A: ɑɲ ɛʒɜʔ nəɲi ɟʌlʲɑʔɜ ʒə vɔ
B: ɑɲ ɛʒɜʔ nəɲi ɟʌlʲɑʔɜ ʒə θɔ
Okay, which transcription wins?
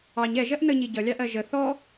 B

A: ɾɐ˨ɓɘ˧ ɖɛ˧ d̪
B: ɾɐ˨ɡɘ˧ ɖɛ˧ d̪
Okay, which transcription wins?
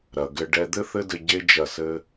B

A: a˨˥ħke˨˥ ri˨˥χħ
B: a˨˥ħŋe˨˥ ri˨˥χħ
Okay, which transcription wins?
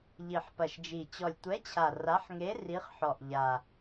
B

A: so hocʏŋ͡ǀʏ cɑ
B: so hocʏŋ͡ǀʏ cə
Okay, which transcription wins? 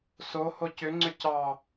A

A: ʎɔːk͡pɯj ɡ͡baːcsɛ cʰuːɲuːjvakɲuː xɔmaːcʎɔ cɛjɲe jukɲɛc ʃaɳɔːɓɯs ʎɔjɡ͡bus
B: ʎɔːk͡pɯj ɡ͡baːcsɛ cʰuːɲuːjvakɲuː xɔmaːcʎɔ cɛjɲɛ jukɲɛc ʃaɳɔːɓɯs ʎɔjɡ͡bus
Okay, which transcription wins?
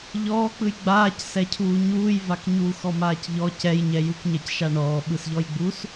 B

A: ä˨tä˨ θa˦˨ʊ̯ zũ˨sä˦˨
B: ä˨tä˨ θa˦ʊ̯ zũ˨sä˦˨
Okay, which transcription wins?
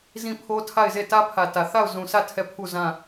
A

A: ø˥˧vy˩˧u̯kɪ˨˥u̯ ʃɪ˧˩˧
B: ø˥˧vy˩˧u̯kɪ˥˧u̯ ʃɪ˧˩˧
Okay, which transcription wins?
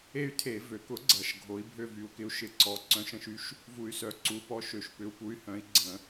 A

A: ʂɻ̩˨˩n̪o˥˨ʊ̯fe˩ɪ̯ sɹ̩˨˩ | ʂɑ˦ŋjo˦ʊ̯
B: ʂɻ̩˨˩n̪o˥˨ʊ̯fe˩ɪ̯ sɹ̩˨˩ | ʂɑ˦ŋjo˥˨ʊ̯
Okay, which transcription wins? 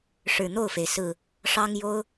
A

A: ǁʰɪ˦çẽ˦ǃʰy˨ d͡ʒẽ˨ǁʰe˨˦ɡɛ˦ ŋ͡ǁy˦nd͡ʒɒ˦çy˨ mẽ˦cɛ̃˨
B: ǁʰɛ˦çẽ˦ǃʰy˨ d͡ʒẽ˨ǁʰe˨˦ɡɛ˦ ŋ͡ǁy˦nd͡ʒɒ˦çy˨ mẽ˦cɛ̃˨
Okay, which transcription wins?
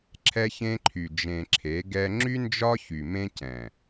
B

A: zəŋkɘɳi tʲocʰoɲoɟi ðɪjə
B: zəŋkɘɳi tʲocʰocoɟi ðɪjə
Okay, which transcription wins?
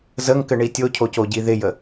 B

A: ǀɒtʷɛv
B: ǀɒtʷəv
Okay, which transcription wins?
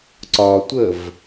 B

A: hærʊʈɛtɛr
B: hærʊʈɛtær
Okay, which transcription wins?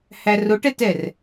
A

